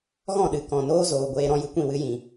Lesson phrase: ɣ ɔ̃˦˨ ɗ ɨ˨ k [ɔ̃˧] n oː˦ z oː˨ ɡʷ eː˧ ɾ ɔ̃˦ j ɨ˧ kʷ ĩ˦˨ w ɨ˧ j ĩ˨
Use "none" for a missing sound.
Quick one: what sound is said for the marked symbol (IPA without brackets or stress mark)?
ɔ̃˨